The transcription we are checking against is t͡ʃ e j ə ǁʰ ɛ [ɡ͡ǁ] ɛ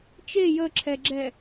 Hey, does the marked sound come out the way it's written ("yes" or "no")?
yes